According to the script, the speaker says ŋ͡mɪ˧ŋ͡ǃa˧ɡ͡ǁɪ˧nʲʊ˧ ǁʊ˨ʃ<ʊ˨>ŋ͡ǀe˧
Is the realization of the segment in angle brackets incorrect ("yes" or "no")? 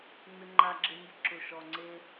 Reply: yes